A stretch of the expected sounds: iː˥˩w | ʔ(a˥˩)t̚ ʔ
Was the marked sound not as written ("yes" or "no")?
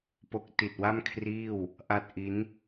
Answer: no